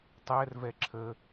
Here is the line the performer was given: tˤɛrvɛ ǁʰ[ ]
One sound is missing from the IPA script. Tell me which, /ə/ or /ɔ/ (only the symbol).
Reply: ə